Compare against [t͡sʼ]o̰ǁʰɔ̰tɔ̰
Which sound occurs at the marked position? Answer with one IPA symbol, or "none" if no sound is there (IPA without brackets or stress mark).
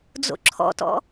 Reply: d͡z